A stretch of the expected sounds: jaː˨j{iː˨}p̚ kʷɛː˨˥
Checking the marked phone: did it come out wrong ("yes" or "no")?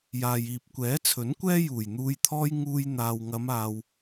no